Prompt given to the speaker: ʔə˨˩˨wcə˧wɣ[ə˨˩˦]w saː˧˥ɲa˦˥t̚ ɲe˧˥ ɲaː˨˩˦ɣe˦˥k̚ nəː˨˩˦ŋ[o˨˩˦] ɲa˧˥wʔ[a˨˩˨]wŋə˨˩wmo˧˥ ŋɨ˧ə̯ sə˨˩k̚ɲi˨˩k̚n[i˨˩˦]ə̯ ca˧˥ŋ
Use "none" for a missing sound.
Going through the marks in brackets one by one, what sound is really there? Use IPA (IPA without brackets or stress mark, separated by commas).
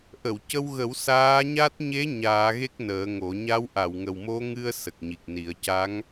ə˨˩˦, o˨˩˦, a˨˩˨, i˨˩˦